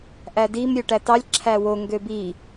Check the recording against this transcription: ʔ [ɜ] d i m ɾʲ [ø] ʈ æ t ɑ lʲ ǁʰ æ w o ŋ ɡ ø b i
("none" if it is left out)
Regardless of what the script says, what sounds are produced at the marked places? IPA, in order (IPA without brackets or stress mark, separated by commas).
æ, ø